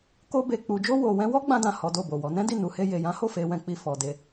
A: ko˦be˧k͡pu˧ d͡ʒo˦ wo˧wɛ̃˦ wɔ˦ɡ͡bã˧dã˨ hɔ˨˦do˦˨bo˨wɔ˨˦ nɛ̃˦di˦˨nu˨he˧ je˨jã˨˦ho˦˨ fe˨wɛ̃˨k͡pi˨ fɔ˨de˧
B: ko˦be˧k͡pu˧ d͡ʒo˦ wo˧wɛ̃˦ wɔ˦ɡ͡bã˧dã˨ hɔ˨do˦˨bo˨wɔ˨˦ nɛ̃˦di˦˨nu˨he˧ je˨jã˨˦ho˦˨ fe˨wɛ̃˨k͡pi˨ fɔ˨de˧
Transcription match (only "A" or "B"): A